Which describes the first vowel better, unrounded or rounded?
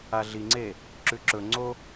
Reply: unrounded